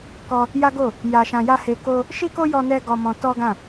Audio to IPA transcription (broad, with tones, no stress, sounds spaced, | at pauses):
k ɔ˦ | j a˦ ɡ o˦˨ | j a˧ ʃ ã˧ j a˦ h e˧ k o˦ | ʃ i˦ k o˦ j ɔ˧ n ɛ˧ ɡ ɔ˦ m ɔ̃˦ t ɔ˦ ɡ ã˦˨